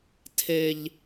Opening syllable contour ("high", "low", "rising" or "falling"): low